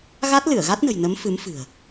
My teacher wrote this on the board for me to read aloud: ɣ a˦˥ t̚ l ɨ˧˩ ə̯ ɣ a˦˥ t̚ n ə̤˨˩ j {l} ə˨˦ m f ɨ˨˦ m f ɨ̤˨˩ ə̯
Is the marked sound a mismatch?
yes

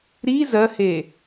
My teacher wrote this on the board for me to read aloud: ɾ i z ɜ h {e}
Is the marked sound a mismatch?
no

